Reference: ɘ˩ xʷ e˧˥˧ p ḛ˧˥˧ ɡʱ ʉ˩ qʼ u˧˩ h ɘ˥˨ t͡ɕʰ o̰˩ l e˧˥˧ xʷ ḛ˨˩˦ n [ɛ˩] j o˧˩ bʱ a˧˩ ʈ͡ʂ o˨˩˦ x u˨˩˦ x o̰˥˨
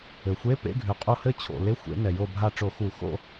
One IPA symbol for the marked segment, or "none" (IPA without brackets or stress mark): ɛ˩